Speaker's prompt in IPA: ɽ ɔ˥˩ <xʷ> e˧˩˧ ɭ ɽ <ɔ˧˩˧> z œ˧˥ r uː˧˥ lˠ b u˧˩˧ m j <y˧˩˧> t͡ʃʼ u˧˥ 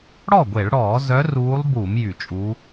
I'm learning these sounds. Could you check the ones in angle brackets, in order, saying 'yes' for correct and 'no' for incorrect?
no, no, yes

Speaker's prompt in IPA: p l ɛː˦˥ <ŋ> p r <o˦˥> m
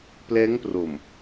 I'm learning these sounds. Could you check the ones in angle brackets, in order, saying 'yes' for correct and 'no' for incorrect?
yes, no

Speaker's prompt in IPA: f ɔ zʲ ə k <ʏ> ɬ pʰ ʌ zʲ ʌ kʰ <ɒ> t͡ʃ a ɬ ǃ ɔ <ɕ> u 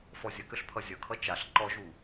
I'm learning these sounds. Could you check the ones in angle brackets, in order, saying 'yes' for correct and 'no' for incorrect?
yes, no, no

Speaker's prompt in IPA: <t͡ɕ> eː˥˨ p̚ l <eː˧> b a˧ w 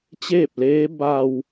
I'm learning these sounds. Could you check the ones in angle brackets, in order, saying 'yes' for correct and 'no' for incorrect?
yes, no

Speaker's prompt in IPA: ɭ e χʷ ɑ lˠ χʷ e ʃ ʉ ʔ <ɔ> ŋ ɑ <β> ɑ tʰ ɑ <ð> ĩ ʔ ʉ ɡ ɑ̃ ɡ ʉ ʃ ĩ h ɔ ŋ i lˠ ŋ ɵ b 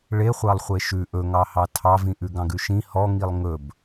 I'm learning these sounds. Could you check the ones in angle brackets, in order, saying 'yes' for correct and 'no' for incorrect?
no, no, no

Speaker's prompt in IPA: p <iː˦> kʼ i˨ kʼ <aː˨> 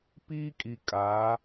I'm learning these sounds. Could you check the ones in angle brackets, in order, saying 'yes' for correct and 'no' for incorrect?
yes, no

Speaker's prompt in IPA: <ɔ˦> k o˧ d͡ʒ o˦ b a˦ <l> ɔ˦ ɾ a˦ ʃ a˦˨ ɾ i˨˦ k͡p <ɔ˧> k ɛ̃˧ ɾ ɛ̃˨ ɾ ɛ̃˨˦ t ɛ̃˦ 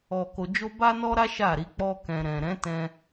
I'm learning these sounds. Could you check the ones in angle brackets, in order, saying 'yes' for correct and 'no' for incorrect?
no, no, no

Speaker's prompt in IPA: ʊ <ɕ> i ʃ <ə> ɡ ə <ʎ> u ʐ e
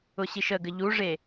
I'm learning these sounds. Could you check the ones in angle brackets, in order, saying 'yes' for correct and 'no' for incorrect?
yes, yes, yes

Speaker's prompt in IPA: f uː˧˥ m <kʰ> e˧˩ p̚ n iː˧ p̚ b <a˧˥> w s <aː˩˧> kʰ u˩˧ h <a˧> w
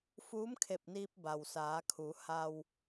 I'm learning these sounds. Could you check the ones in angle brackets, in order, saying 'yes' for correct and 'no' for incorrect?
yes, no, yes, yes

